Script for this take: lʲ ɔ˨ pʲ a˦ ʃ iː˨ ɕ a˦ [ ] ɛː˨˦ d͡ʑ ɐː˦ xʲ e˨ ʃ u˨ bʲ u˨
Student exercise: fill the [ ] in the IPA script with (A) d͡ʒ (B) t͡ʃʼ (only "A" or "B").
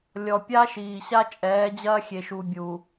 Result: B